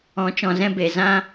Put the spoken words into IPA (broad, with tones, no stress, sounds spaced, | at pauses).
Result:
ɔ̃˨˦ t͡ʃ ɔ̃˨ z ɛ̃˧ b e˨ z ã˦